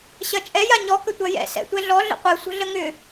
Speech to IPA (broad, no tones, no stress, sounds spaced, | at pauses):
ɕ ɐ t͡ʃʼ ɛ j a ɲ ɔ k ə tʷ ɐ j ɛ̰ s ɛ̰ tʷ ɛ ɮ ɔ ɮ ə̰ qʷ ɛ sʷ ə̤ ɮ ə ŋ ʏ